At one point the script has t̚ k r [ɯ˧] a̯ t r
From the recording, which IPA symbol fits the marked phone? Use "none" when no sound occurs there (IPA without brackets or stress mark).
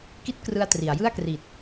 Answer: ɯ˧